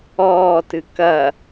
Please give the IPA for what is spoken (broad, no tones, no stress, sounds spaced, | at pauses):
ɔː t ɨ k ɐ